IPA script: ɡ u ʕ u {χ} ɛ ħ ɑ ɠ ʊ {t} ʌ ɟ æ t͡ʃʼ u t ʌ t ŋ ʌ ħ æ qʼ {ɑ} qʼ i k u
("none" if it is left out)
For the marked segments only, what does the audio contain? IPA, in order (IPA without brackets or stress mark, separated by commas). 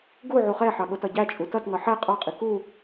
χ, t, ɑ